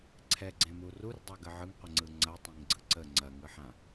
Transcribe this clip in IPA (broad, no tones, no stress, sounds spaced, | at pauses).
ǀʰ ɛ ɡ͡ǀ ẽ m u r u r dˤ a ɡ ə ʕ ɯ ŋ qʷ ə ŋ͡ǀ ɯ ŋ͡ǀ ɐ tˤ ẽ ŋ ɡ͡ǀ ɯ ǀ ə ŋ͡ǀ ɐ ŋ ɯ ħ ã